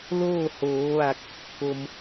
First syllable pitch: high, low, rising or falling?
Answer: falling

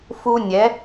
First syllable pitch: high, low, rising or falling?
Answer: high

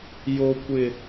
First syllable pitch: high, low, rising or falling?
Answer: high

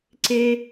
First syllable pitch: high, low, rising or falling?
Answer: high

